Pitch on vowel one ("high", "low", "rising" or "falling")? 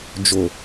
low